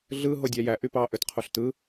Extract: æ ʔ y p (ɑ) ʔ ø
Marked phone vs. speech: correct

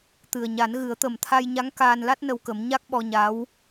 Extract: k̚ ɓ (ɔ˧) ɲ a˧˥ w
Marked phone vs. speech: correct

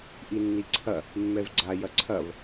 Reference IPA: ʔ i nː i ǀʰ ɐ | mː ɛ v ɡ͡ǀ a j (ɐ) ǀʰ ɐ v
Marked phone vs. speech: correct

